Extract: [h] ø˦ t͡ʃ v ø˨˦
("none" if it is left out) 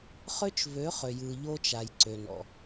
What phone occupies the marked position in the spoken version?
χ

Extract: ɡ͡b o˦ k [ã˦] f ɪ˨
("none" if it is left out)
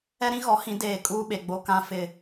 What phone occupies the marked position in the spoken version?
ã˦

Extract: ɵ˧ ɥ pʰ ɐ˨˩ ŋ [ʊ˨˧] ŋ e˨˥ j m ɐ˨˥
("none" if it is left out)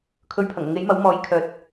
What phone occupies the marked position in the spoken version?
ʊ˨˧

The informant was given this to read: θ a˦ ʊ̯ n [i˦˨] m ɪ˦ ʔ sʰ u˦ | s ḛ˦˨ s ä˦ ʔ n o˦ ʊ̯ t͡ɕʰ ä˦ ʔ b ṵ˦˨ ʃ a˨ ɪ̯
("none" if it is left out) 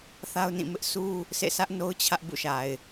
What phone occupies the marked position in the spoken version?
ĩ˦˨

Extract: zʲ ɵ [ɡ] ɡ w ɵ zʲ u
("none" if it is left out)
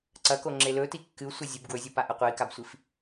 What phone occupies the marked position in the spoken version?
b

